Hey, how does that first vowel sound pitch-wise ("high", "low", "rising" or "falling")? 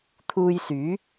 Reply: low